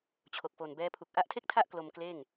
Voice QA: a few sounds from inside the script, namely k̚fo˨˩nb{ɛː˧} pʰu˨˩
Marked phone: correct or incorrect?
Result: incorrect: ɛː˦˥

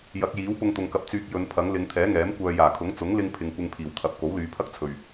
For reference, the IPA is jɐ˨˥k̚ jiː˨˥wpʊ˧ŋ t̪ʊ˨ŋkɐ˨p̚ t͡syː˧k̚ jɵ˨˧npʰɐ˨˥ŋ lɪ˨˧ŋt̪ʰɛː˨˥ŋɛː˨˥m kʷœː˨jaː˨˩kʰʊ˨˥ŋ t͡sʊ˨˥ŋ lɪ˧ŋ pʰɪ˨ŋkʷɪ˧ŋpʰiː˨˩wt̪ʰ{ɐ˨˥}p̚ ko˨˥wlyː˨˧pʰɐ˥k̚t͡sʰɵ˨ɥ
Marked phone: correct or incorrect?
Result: correct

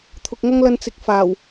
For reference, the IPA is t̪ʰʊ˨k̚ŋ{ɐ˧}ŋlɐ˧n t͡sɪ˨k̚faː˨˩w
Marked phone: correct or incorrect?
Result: incorrect: ɐ˥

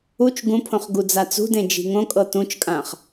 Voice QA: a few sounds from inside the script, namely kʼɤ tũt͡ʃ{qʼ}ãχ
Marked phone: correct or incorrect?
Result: incorrect: kʼ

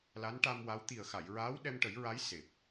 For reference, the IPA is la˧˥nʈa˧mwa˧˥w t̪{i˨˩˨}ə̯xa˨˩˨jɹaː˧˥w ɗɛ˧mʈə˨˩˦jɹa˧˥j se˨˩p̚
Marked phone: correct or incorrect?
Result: incorrect: i˨˩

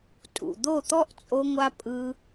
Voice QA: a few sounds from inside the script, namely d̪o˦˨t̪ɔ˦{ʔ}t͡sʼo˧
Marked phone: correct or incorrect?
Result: correct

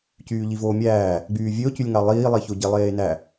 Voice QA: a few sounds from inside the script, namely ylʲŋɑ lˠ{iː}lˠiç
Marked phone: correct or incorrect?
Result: correct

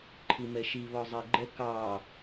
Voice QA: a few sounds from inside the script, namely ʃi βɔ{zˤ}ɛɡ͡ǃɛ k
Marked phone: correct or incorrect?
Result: correct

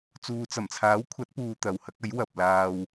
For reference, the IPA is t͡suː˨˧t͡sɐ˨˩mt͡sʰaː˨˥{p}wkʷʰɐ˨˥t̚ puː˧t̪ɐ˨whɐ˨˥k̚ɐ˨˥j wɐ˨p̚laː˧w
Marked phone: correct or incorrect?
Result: incorrect: none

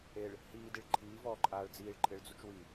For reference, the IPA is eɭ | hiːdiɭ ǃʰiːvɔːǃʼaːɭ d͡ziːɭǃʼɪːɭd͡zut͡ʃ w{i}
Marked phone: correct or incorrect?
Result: correct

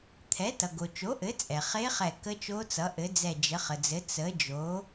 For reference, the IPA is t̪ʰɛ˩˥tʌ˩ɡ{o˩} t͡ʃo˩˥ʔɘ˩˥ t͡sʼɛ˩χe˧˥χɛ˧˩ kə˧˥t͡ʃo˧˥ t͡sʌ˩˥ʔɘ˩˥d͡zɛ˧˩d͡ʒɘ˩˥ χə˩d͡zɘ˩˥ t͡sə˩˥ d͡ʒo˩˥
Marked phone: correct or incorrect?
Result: correct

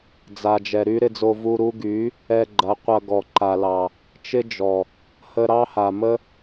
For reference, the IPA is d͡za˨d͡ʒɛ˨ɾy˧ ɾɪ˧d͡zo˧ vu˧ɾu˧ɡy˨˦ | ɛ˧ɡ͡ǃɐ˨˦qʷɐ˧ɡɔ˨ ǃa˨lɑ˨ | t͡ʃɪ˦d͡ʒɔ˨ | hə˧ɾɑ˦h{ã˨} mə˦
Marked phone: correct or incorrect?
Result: incorrect: a˨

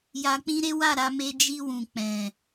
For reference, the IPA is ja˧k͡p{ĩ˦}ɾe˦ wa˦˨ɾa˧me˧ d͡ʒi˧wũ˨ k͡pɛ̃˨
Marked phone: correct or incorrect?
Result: correct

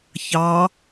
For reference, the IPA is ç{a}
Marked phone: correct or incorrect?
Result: incorrect: ɑ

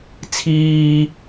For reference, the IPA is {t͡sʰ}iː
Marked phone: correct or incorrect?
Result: correct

